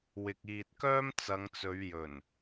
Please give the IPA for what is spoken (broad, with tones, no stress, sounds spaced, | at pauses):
w ɪ˨ k̚ iː˨ t̚ k œː˥ m t͡s ɐ˨˧ ŋ t͡s ɵ˨˧ ɥ j ɵ˨˩ n